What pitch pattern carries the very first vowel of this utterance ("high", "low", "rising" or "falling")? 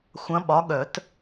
rising